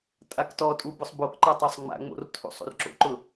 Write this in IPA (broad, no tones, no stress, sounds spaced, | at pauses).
tʼ a k t ɔ tʼ u b ʊ sˤ b o k ǃ a tˤ o sˤ ŋ͡m a̰ ŋ͡m o̰ r tʰ ṵ sˤ ṵ r ǁ o̰ ǃ ʊ